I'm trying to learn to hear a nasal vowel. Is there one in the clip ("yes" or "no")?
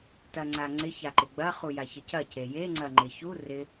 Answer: no